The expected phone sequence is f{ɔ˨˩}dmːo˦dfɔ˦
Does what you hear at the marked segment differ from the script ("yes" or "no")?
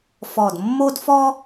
no